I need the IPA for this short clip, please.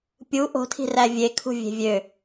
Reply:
pʲ u ʔ o̤ tʰ i̤ r æ vʲ e kʰ ṳ vʲ e̤ vʲ ø

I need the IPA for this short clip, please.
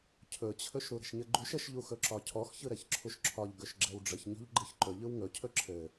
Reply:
cʰ ɵ t͡ɕʰ ɵ ʃ ɾ u ɾ ə̤ ʃ ɲ ɘ ɡ͡ǃ u ʃ ə ʃ ʎ u x ɵ ǁ ɒ cʰ ɔ x ç ɯ ɾ ɛ ç ǁʰ u ʃ ǁʰ ɒ ʎ ɡ ɵ ʃ ɡ͡ǁ ɛ w ɖ͡ʐ ə ç ɲ ɔ̤ ʎ ɡ͡ǃ ɯ ç ǃ ɵ ʎ ɯ w ŋ ɵ cʰ ɵ ǁʰ ɘ

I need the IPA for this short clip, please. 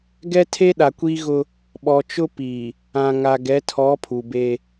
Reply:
ɡ ɛ˦ tʰ e˦ ɗ a˨ kʷ iː˦ ɣ ʊ˦ | ɓ ɔ˨ t͡ʃ ʊ˦ p i˨ | ã˨ ŋ a˨ ɡ ɛ˨˦ tʰ ɔ˨˦ pʰ u˨ b e˦

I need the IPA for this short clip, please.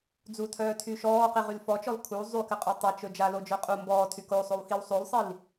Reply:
d͡z u tʰ œː tʰ y ʃ ɔː q i ʁ y l f ɔ t͡ʃ ɔ l kʰ u zˤ y k ɘ qʼ o tˤ ɛ t͡ʃ ɵ d͡ʒ a l o d͡ʒ œ qʼ u m b ɔː tʰ y k o sˤ o w x i w sˤ o l sˤ i l

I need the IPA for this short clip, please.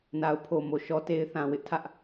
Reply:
n a˨ ʊ̯ pʰ o˨ m o˨ ʃ ɔ˦ t e˦ ɪ̯ θ ã˨ w ɪ˦ ʔ tʰ ä˦ ʔ

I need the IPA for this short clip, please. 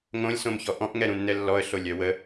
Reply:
ŋ õ lʲ s õ m ç ɔ ʔ ɔ̃ ʔ ŋ ɛ ɾ ũ nː ɛ lː ɔ ə̯ ɬ o lʲ œ w ə

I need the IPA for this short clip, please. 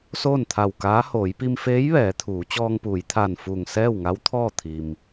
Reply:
s oː˥˨ n t̪ʰ a˧˩ w k aː˧˥ h oː˩˧ j p i˧ m f eː˧˥ j ʋ ɛː˩˧ t̪ʰ uː˩˧ t͡ɕ ɔː˧ ŋ p uː˩˧ j t̪ʰ aː˧˩ n f uː˧˩ ŋ s ɛː˥˨ w ŋ a˧˥ w t̪ʰ ɔː˥˨ t̪ʰ i˩ m

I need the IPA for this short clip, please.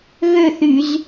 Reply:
ɣ ø˥˨ θ y˧˩˧ z

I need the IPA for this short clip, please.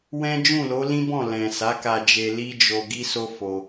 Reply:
w ɛ̃˦ d͡ʒ ũ˦˨ l o˨˦ l ĩ˦ b ɔ̃˦˨ l ɛ̃˨ s a˨˦ k a˧ d͡ʒ e˧ l i˦ d͡ʒ o˧ ɡ i˦ s o˦ f o˧

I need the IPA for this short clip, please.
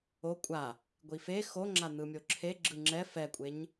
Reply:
o kʷʼ a | ɡʷ i f e x o ŋ͡ǁ a n̪ ɯ mʲ o ǁʰ e ɡ͡ǁ ɯ ŋ͡ǁ ɛ f ɛ kʷʼ e ɲ

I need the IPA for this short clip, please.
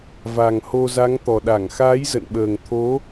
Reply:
v a˨˩ ŋ h o˧ z a˨˦ ŋ t̪ ɔ˨˩ ɗ a˧˩ ŋ x aː˨˦ j z ə̰˧˨ n ɓ əː˨˩ ŋ t̪ʰ o˨˦

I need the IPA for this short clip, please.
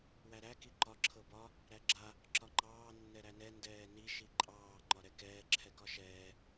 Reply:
w æ ɾ æ k i ǃ ɒ ǁʰ ɤ b ɒ | ɾ æ ɡ͡ǁ a | ǁ ɒ ŋ͡ǃ ɑː nː ɛ ɾ æ n ɛ n d ɛː n i ʃ i ǃʼ ɑː ŋ͡ǃ ɒ ɾ ɛ k ɛː ǁʰ ɛ k ɒ ʃ ɛː

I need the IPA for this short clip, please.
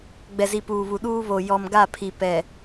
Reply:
ɡ͡b ɛ˨ z i˨ p uː˨ β u˨ ɗ uː˦ β o˨ j ɔ˨ m ɡ a˦˨ pʰ i˨ p ɛ˨

